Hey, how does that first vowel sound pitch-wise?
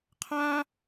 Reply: high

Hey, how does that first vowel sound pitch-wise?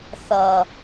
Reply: low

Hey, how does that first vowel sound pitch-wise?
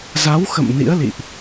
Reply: rising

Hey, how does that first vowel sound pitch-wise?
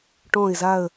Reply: low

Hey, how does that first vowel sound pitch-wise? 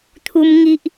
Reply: high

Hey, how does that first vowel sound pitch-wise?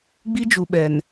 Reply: high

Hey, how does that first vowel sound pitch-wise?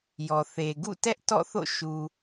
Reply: low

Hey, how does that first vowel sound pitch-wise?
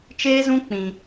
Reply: high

